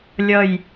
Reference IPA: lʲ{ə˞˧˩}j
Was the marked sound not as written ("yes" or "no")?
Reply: yes